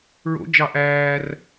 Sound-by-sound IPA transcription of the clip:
ɹ o̰ d͡ʒ ɑ ʔ æː r

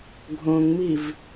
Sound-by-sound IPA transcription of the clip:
ɡʱ õ ŋ m i v

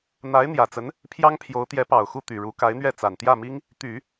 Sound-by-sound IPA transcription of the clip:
n̪ a˧˥ ɪ̯ n̪ j ä˨˩ t͡s ə˧˥ n | pʰ j ɑ˥ ŋ pʰ j o˧˥ ʊ̯ t̪ j ɛ˧˥ p ɑ˨˩ ʊ̯ x u˥˩ t̪ y˨˩ ɻ u˧˥ k a˧˥ ɪ̯ n̪ ɥ ɛ˥˩ t͡s a˨˩ n t̪ j ä˥˩ m i˥ ŋ | t̪ y˨˩˦

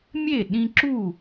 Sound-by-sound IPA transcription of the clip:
mʲ e˥˨ ɗ ĩ˦ ǁ u˥˨

